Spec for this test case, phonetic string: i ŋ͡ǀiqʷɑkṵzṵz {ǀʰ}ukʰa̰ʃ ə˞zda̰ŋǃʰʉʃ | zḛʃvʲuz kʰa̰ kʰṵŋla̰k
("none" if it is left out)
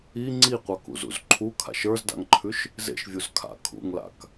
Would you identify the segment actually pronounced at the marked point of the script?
ǃʰ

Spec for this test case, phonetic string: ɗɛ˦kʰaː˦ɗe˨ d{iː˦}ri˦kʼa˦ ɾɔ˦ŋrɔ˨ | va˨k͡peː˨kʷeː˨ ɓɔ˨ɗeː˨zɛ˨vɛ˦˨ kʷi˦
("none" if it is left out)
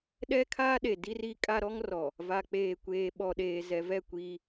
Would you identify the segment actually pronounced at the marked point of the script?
i˦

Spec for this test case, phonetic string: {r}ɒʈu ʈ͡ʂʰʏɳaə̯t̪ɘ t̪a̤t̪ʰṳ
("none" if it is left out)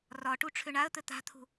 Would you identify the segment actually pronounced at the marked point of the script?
r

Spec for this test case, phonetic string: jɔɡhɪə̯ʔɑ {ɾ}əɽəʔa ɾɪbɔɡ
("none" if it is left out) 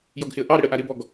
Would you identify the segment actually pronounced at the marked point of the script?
ɾ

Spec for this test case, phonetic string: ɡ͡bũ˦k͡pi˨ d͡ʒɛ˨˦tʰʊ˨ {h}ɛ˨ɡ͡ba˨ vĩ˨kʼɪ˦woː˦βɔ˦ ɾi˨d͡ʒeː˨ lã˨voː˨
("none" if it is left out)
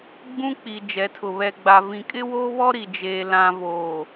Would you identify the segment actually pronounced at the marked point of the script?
β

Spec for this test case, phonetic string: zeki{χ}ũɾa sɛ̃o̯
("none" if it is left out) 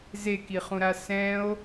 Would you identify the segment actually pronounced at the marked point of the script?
χ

